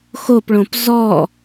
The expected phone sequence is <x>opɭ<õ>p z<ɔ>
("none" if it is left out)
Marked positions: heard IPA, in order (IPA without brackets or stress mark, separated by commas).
x, õ, ɔ